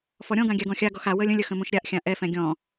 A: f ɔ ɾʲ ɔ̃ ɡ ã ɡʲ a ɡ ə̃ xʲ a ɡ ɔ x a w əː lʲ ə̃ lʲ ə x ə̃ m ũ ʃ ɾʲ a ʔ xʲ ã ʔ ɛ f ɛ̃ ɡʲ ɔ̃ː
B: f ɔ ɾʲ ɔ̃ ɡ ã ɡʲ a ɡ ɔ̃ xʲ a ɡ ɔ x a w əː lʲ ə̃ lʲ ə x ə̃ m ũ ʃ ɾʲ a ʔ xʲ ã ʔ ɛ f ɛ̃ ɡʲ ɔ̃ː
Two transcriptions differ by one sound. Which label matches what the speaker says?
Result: B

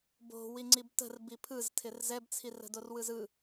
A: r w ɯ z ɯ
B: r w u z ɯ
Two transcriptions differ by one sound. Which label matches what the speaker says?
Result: A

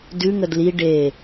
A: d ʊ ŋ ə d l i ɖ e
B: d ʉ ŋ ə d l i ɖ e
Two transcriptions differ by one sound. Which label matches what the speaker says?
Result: B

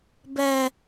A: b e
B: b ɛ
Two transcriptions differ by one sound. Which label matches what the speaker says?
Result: B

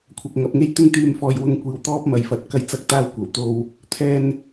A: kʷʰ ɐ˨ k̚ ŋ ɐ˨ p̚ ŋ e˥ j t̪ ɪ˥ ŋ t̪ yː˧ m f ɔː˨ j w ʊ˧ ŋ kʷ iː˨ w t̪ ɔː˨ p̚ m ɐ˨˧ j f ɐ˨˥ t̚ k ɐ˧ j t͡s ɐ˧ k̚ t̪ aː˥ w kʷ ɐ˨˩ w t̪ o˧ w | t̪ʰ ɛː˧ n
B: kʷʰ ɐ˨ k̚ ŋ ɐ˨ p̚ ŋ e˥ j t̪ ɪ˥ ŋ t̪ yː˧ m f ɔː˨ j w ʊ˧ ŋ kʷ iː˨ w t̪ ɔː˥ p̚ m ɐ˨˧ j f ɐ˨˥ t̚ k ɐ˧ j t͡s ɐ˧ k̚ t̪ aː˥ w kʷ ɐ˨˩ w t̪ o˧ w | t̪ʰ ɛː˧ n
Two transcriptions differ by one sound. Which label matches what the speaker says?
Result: B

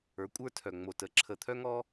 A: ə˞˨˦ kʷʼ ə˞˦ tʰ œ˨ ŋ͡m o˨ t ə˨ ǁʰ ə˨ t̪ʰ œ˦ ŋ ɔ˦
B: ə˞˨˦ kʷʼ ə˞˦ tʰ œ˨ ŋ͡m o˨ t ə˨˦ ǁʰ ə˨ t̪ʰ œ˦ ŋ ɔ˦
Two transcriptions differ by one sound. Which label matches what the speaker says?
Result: B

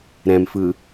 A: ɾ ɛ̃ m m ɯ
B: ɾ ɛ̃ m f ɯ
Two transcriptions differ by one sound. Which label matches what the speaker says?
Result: B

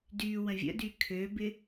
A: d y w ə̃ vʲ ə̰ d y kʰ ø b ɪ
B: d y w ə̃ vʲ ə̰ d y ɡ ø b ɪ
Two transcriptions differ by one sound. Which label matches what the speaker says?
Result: A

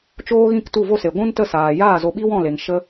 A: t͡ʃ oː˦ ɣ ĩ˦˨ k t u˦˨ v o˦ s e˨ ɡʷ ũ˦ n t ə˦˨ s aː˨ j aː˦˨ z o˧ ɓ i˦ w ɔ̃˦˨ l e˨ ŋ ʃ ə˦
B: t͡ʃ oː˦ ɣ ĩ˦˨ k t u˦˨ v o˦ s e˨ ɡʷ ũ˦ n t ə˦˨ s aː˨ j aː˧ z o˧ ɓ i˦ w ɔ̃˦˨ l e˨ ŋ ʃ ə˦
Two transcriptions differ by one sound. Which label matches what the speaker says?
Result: A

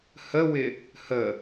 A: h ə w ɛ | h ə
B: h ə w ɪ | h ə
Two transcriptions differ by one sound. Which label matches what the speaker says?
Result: B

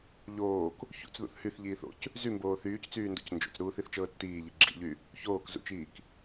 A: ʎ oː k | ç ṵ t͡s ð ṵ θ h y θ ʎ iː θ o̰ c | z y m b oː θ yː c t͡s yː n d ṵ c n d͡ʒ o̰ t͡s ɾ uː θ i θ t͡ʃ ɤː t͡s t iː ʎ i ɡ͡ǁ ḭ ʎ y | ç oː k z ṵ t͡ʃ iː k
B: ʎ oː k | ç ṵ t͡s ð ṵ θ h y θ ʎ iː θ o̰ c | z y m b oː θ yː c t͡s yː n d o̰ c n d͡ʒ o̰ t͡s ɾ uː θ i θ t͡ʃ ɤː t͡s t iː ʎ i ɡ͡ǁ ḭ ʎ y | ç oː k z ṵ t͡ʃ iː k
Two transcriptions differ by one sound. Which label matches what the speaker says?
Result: B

